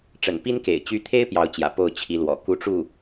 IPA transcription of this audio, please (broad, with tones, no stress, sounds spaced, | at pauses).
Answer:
ʈ͡ʂ ə̰˨˩ n p i˥ n k ḛ˨˩ ɪ̯ t͡ɕ y˧˥ t̪ʰ e˥ ɪ̯ p j ɑ˧˥ ʊ̯ t͡ɕ j ä̰˨˩ p o˥˩ ʊ̯ t͡ɕʰ i˧˥ l w ɔ̰˨˩ k u˥˧ ʈ͡ʂ u˥˩